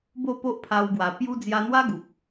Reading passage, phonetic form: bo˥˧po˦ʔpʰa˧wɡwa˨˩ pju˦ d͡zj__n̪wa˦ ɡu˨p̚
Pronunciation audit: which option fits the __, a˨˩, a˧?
a˧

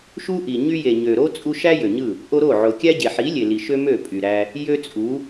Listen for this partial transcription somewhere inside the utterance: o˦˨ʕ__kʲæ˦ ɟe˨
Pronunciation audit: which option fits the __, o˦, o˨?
o˨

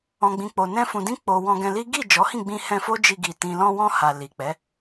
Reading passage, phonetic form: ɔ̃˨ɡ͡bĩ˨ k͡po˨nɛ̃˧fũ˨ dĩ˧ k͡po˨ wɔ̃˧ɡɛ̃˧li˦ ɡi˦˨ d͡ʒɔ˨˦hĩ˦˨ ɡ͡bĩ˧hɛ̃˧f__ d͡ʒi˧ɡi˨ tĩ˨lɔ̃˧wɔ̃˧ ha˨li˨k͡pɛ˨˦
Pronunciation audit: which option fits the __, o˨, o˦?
o˦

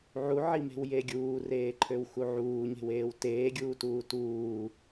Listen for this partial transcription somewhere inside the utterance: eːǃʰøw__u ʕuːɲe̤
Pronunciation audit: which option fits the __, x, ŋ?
x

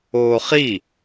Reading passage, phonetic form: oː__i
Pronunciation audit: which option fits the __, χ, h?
χ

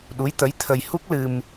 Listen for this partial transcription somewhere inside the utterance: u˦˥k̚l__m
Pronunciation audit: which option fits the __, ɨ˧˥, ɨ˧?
ɨ˧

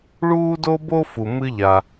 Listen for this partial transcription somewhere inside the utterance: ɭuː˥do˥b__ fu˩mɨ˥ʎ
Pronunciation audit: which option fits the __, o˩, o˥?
o˥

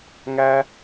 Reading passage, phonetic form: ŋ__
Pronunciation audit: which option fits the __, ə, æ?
æ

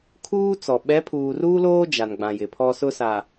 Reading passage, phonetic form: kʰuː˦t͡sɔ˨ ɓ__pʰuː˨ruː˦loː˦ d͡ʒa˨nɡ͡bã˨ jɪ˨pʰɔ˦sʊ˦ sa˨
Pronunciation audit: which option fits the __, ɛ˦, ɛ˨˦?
ɛ˨˦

